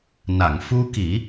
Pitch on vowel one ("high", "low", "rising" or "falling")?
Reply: low